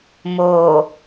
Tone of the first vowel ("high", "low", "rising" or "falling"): low